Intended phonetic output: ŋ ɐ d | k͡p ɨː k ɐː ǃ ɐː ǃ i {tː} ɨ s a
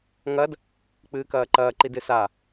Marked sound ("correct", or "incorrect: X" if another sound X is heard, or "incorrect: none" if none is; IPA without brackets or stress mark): incorrect: d